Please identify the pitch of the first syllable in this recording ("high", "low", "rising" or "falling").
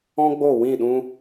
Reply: high